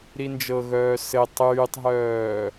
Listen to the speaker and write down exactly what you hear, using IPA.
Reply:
ɾind͡ʒɤɣœː sɘ tˤyːtˤɦœː

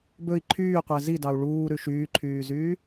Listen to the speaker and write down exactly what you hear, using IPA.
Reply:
bɵi̯ ǃʰyːqʷæ zidɑu̯ ɭuːɾʉ ʃyːǃʰyːzyː

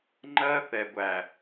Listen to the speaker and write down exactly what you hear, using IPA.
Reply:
ŋ͡ǃɜ˦θɛ˨ɡʷæ˨

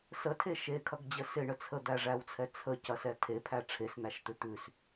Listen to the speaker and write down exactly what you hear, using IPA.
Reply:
sətʰe ʃekʰɐɡd͡ʑə sɪɳə t͡sʰəd̪æʐæwt͡sʰɛ t͡sʰəcɐsɛ tʰepʰæ ʈ͡ʂʰesn̪æʃt̪ɪ t̪ʉs

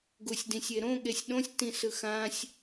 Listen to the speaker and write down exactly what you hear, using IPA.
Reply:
ɡusʲdĩsʲeɾõ ɠesʲɗõsʲtĩ sɯxãsʲ

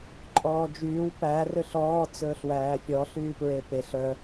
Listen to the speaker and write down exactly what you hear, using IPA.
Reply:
ǃʼɔːd͡ʒyːw pæ røɬɔː t͡sɵːɬwæːfʲɔ ɬyːpɹepeɬ œ

